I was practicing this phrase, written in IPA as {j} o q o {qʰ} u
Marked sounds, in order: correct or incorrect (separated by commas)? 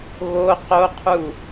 incorrect, correct